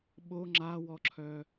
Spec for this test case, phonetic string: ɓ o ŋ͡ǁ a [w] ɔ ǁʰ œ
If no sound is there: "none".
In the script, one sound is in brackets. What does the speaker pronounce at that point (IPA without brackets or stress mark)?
w